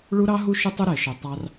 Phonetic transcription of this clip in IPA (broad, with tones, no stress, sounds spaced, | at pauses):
ɭ u˦ ɾ ɑ˦ ɦ u˦ ʃ ʊ˦ tˤ ʊ˦ ɾ ɛ˨ ʃ ə˨ tˤ ɑ˦ r